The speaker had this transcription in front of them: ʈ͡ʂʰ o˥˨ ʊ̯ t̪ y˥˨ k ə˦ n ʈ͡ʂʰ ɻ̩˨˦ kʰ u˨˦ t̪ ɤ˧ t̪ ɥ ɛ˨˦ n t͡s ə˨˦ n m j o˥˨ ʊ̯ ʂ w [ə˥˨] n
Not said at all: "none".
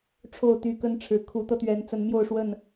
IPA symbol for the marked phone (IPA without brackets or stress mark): ə˥˨